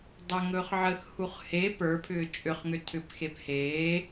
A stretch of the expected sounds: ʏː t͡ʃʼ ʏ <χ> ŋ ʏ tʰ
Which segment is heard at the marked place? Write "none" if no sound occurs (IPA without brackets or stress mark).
χ